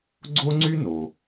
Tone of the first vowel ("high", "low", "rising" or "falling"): high